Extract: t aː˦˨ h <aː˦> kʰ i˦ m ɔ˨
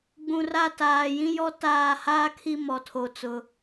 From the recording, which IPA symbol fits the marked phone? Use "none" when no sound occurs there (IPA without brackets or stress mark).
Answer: aː˦